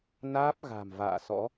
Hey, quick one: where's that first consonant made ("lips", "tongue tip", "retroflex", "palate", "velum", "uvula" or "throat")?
tongue tip